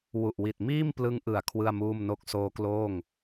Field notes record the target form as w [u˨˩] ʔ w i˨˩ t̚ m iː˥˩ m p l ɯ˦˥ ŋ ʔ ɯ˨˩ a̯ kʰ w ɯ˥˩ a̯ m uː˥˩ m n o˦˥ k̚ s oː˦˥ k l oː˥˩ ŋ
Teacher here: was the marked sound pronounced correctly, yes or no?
yes